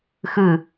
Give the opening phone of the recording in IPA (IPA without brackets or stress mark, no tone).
x